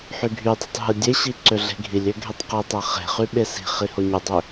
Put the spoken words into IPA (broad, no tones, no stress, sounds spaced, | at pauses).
ħ y ɡʱ y dˤ i̤ tˤ ɦ ɯ dʲ e ɕ i ǀ ø ɮ e̤ ɡʱ i lʲ ø ɡʱ e tˤ q i tˤ æ χ e̤ χ y ɓ e s i̤ χ i h o ɲ u dˤ ø